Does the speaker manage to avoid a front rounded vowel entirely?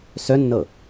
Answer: no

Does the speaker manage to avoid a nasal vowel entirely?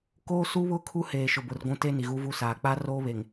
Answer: no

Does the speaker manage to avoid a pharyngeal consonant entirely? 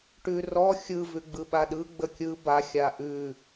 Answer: yes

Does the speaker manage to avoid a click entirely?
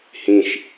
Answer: yes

